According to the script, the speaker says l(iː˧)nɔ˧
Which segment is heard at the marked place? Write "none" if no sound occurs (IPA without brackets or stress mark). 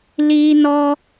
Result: iː˧